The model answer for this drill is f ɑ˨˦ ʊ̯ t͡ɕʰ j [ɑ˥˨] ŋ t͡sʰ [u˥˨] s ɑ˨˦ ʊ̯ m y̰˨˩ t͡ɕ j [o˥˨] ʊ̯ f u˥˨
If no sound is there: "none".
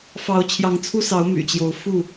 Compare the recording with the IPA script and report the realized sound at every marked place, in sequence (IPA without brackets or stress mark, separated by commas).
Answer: ɑ˨˦, u˦, o˨˦